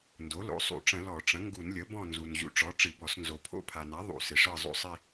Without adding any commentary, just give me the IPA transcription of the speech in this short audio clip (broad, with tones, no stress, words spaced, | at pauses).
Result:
ndo˩˥lo̰˩˥sˤṵ˧˩˧ʈ͡ʂə̃˧˩˧ lɔ˧˩˧ʈ͡ʂə̃˩˥ ŋɡu˧˩˧nlʲə˩˥ bɔ̃˦˨nzu˩n ʑṵ˩˥ʈ͡ʂɔ˩˥ ʈ͡ʂɨ˧˩˧bɔ˧˩˧s nzo˩pʰo̰˦˨pʰa˩na˩˥ ðˤṵ˧˩˧sɪ˩ʂɤ˦˨ zˤo̰˦˨sˤi˦˨